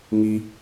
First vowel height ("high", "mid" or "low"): high